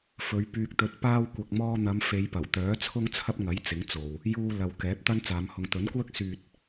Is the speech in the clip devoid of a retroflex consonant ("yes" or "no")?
yes